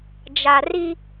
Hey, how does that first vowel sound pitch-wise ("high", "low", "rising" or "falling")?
low